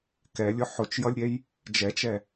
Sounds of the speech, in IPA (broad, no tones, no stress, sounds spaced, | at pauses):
k ɛ lʲ ʊ ħ ʊ t͡ʃ j ʌ lʲ ɾʲ ɛ j | d͡ʒ ɛ t͡ʃ ɛ